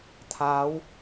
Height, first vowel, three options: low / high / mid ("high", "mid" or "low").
low